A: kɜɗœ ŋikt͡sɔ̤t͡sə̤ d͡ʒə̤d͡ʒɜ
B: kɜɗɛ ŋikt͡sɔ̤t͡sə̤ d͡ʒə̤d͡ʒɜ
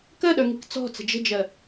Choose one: A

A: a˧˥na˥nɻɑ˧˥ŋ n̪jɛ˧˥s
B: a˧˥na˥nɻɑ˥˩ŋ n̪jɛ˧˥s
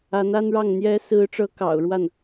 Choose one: B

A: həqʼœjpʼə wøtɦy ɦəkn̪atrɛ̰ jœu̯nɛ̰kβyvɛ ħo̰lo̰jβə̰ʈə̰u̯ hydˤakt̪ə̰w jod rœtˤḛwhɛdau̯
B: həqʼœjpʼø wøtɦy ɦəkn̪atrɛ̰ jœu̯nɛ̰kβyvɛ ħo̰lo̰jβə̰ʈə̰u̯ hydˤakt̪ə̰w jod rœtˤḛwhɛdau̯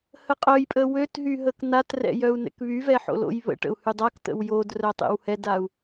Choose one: A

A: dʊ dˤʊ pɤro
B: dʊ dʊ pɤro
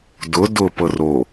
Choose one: B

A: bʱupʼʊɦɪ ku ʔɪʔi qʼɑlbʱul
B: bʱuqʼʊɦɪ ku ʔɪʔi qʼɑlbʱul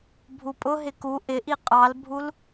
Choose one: A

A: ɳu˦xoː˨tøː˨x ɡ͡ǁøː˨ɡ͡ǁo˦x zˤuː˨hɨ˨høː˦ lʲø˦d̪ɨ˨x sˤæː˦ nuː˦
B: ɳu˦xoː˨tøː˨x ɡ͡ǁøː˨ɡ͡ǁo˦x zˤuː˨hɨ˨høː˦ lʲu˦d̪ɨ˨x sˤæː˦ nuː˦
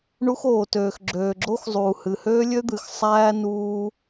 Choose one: A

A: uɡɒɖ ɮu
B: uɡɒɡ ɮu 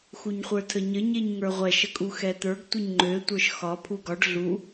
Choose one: A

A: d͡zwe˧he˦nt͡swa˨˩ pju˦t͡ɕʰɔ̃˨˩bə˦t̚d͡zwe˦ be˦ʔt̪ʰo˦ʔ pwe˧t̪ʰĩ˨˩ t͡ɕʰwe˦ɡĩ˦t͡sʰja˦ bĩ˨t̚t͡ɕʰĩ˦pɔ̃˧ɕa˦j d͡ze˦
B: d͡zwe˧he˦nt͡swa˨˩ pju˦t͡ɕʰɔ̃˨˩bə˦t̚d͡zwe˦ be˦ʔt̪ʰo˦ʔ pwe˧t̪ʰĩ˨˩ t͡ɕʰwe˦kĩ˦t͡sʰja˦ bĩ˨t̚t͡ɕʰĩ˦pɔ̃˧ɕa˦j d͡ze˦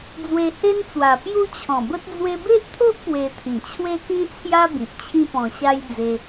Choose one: B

